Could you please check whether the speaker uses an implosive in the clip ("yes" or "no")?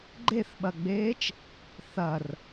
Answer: yes